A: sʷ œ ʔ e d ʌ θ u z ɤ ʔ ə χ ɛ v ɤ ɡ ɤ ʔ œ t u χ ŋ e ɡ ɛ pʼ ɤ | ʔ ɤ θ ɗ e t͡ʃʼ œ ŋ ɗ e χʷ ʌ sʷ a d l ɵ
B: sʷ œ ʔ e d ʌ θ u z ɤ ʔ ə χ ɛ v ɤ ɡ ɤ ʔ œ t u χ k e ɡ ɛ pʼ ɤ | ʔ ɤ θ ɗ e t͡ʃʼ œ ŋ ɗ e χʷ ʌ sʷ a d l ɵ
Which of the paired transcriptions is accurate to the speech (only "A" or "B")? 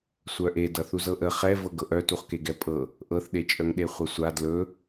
B